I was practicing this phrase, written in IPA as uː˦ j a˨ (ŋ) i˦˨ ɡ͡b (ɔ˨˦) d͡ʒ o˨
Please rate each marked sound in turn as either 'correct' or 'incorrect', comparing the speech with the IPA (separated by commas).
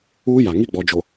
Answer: correct, incorrect